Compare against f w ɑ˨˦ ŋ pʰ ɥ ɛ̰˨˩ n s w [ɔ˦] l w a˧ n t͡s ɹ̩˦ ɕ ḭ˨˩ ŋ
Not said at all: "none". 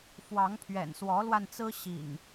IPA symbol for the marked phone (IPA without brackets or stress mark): ɔ˨˦